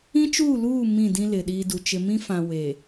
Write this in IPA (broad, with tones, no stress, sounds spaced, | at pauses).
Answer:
ĩ˦ t͡ʃ uː˦˨ l uː˦˨ m ĩ˦˨ d ĩ˦ l ɪ˨ ɗ iː˦ d u˨ t͡ʃ ɪ˦ m ĩ˦ f ã˨ w e˨